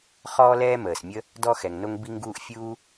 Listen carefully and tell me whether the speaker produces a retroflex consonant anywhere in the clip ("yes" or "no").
no